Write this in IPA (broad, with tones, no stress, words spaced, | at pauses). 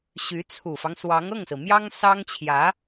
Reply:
ɕy˧˥t͡sʰu˨˩fɑ˦ŋ swɑ˧˥ŋɤ˥˩ŋsɹ̩˩mjɑ˥ŋ sɑ˥ŋt͡ɕʰjä˧˥